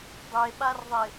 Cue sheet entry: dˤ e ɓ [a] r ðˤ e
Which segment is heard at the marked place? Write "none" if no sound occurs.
a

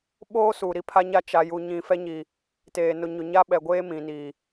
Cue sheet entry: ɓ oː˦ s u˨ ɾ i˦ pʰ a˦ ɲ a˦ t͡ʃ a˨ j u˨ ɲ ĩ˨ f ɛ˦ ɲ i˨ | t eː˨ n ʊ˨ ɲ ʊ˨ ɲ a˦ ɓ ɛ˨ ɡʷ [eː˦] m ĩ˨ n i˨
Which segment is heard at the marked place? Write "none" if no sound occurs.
eː˦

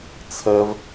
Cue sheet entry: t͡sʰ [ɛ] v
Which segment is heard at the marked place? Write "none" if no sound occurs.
ɜ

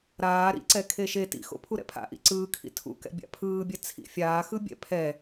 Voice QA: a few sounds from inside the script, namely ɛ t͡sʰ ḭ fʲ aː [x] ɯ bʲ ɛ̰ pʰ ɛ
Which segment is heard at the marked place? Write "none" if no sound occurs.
x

